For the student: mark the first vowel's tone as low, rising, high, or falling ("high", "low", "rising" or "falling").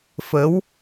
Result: rising